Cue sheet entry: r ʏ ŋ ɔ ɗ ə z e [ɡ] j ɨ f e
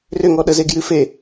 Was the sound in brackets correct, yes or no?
yes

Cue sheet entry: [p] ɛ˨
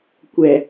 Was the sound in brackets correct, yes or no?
no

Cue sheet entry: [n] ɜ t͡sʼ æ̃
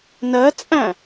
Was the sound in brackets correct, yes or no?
yes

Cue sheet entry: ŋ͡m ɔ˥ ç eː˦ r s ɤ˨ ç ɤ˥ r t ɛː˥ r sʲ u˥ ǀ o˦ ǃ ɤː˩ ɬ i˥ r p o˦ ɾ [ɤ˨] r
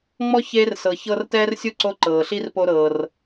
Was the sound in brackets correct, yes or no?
no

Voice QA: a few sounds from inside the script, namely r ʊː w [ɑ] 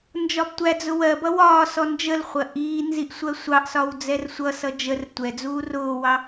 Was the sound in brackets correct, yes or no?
yes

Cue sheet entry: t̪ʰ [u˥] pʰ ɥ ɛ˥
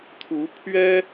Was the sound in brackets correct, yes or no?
no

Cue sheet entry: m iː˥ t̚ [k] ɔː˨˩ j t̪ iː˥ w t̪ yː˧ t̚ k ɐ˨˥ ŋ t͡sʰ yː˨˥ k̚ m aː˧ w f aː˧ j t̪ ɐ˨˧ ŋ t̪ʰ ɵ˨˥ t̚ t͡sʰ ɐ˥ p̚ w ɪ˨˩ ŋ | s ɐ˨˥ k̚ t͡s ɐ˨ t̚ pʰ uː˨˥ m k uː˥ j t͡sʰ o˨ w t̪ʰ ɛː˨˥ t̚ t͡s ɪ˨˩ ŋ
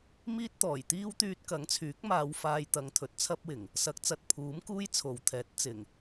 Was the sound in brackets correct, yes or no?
no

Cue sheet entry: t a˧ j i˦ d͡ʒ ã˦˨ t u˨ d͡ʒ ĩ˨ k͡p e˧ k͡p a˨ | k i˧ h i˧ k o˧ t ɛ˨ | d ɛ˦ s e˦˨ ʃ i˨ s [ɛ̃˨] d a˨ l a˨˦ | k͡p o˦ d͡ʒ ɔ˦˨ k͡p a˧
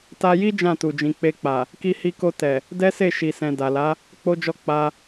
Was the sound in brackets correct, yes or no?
yes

